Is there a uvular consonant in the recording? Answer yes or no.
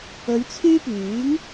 no